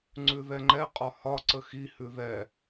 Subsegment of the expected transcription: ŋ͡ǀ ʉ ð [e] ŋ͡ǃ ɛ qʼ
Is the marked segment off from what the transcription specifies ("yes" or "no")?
yes